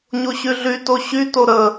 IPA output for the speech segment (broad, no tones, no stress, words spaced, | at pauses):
ɲoɕyɮy toɕy toɾə